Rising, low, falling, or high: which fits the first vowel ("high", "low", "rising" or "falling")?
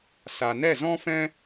low